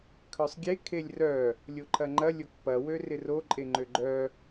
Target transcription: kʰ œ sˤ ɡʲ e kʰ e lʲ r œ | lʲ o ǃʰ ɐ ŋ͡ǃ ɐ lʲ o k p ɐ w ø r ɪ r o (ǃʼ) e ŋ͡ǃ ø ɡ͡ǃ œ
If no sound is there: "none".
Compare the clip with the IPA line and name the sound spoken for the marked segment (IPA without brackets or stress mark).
ǃʼ